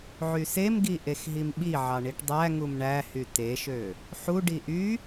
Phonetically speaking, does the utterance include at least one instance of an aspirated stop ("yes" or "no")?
no